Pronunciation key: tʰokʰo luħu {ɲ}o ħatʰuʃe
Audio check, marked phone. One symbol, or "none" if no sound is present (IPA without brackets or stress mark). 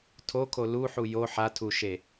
j